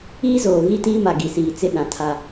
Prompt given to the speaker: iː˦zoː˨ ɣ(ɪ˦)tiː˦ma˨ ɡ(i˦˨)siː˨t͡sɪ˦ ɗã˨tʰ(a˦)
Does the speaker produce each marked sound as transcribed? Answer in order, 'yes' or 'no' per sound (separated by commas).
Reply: no, no, yes